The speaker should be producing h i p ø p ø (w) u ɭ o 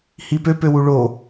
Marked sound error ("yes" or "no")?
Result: no